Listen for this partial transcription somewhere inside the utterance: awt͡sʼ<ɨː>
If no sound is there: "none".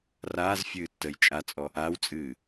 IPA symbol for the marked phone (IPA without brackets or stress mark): ɨː